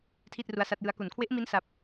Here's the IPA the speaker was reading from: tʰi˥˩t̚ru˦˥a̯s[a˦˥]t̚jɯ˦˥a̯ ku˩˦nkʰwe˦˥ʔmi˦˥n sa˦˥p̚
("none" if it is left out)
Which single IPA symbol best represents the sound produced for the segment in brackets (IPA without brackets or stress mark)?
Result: a˦˥